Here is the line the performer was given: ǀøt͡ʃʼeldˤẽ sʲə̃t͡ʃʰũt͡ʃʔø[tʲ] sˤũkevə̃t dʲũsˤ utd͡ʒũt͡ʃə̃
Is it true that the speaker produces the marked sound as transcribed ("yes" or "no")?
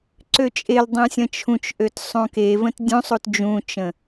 no